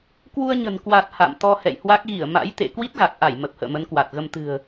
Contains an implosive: no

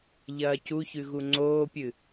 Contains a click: yes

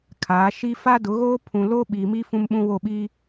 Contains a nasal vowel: yes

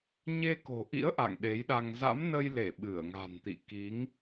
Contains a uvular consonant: no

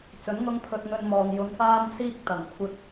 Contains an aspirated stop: yes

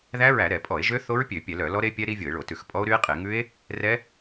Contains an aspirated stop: no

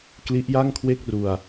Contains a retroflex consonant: no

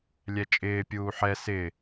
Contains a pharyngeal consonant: yes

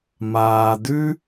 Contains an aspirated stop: no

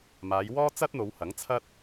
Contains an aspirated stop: yes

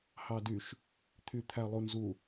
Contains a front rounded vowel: yes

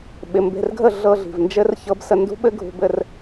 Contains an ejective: no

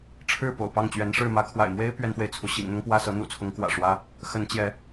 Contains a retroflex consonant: yes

